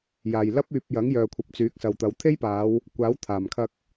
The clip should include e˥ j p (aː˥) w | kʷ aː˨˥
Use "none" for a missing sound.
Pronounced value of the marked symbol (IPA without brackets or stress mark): aː˨˧